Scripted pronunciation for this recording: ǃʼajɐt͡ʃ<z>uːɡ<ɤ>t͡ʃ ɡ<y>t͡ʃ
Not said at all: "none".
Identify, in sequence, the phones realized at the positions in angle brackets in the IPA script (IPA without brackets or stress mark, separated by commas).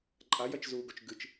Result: z, o, ɨ